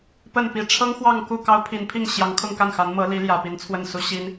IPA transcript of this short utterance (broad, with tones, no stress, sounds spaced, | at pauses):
p ə˥˩ n p i˨˩ ʈ͡ʂʰ ɤ˥ ŋ x w ɑ˥˧ ŋ k u˥˩ k ɑ˥ ʊ̯ pʰ i˧˥ n pʰ i˥˩ ŋ ɕ j ɑ˧˥ ŋ kʰ ʊ˥˧ ŋ k a˥˩ n x a˧˥ n m ɤ˧˥ l i˧˥ l j ä˨˩ p i˧˥ n t͡sʰ w ə˥˩ n s u˥ ɕ i˥ n